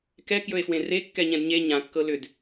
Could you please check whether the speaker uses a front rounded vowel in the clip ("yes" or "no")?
yes